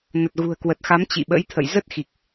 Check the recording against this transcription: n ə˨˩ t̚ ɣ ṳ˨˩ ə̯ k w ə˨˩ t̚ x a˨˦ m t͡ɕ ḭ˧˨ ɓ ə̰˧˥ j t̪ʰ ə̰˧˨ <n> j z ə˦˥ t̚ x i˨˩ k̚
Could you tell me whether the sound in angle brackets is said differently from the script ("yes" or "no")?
yes